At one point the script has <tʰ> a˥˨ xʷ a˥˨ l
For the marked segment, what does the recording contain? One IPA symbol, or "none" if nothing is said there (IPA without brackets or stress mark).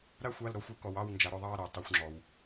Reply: ɾ